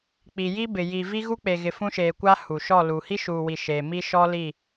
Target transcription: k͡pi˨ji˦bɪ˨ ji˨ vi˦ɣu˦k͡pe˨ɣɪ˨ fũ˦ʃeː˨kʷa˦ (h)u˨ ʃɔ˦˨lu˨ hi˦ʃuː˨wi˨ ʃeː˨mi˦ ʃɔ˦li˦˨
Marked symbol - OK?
yes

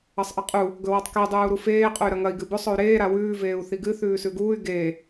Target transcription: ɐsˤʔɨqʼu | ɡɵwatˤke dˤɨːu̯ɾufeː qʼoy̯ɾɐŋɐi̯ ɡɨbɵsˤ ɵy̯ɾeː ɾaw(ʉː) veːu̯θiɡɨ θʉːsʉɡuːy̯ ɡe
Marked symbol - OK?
yes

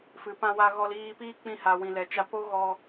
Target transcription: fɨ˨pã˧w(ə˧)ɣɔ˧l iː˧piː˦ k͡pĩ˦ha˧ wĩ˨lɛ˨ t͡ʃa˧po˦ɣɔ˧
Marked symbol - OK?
no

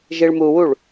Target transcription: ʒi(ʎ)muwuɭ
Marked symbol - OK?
no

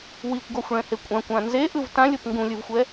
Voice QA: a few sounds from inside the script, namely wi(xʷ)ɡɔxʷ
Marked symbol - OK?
no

